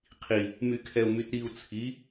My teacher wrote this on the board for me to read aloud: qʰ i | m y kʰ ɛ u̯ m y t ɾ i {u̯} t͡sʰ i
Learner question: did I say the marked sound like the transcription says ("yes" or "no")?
yes